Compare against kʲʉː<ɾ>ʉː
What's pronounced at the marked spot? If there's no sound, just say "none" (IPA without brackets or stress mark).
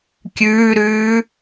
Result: ɾ